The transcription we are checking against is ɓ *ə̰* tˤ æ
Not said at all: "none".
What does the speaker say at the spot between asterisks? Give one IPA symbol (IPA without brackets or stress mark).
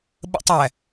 ə̰